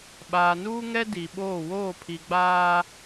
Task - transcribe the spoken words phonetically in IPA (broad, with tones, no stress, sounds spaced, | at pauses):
ɓ aː˨ n uː˦ ŋ ɛ˦ d i˨ ɓ oː˦˨ w oː˦˨ pʰ i˨ ɡ͡b aː˦